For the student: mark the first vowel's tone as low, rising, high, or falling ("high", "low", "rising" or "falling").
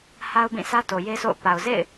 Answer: high